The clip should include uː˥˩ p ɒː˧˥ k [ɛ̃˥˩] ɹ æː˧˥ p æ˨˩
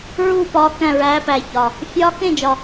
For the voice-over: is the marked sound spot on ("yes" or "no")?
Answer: no